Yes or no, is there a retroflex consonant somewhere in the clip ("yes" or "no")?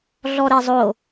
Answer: no